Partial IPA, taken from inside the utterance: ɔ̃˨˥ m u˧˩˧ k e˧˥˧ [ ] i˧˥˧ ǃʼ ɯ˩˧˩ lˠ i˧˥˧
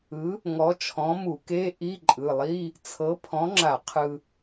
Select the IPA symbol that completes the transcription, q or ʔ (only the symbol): ʔ